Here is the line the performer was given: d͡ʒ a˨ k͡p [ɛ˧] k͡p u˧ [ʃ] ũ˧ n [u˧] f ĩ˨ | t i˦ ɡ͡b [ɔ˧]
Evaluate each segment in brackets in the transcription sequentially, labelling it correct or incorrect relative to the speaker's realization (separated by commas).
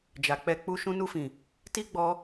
correct, correct, correct, correct